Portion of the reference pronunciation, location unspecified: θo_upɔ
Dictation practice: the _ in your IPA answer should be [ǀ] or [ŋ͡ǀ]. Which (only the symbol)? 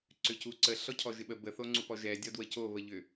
ŋ͡ǀ